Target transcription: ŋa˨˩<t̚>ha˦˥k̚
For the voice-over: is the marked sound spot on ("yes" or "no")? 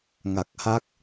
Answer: no